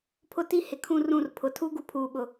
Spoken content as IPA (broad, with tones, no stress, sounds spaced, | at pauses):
pʰ ʊ˦ t i˦ h ɪ˨ kʰ ũ˦ r ũ˦˨ r pʰ ʊ˨ tʰ u˦ ɡ u˦ pʰ uː˨ ɓ ʊ˨